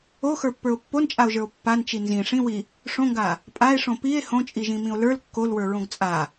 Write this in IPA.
o x ə˞ pː ə˞ o̯ pː o n t͡ʃʼ a o̯ ʒ ə˞ o̯ pː a n t͡ʃ i n z ĩ ʂ ĩ w i | ʂ õ ŋ ɡ a | pʼ a e̯ ʂ õ p i e̯ h õ t͡ʃʼ i ʒ ĩ m ĩ o̯ l ə˞ l kː o l w ə˞ ɹ õ ɡ t͡sʼ a

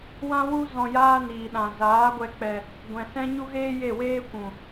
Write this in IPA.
w ã˦ w u˦ z ɔ̃˧ j aː˦ n iː˨ ɗ ã˨ z aː˨˦ ɡʷ ɛ˧ k͡p ɛ˧ | ɡʷ ɛ̃˨ s ɛ̃˦ ɲ u˦ ɣ eː˦ j e˦˨ w eː˦ kʷ ũ˨

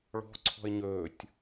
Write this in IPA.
ɭ ɔ̤ ǀʰ ɔ̤ ɪ̯ ɲ ɵː tʲ

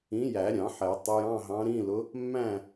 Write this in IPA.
ĩ˨˥ j æ˨˩˦ ɾʲ ɑ̃˨˩˦ ħ ɛ˨˩˦ tˤ ʊ˨˥ j ɑ̃˧˥˧ ɦ ɑ̃˨˥ ɾ ĩ˧˥˧ l ʊ˨˥ | mː æ̃˥˨

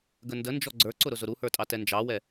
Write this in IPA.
ɡ ə n d ə n d͡ʒ ɔ ɡ͡ǀ ə˞ ǀ ʊ ɾ ʊ z ʊ ɾ u h ə˞ tʼ ɑ t ɛ n d͡ʒ ɑ w ɛ

